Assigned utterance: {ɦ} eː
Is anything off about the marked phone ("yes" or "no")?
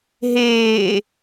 no